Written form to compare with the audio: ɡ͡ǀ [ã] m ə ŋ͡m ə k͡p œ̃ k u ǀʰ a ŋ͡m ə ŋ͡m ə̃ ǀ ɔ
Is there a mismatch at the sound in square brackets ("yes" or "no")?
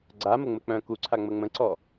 yes